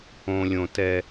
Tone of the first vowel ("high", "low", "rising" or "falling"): low